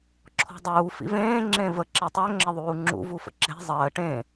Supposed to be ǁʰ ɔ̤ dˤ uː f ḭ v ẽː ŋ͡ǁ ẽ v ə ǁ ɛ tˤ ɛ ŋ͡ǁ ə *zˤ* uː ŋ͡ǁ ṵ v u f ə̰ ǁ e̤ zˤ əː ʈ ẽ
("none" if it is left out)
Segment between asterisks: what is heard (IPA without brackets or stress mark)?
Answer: ðˤ